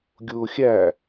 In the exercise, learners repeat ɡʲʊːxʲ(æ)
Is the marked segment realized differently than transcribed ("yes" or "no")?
no